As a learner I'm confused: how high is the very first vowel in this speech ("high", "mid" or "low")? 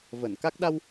mid